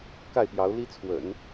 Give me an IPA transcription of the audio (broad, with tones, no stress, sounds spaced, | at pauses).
k a˥˩ ɪ̯ p j ɑ˧˥ ʊ̯ l i˥ t͡sʰ w ə̰˨˩˦ n